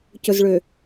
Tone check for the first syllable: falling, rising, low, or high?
low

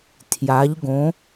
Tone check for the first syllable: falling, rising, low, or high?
rising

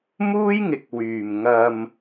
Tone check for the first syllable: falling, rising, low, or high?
high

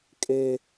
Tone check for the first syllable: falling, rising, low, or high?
high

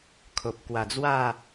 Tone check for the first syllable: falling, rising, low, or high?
low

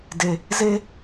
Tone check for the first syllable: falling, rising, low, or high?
low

